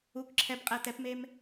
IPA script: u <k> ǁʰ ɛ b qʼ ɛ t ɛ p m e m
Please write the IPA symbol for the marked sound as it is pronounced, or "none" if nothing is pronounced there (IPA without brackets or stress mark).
k